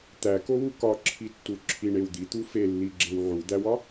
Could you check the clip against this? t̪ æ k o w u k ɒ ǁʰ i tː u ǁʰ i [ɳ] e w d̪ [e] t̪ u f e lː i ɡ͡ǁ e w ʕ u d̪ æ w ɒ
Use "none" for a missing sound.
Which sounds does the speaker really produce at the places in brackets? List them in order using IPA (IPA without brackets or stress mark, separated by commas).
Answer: ɳ, i